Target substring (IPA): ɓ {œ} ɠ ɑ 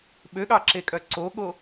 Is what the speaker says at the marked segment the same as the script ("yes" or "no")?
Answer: no